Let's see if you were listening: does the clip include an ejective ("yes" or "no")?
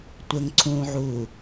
no